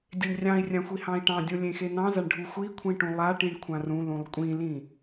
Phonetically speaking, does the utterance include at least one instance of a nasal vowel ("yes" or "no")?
yes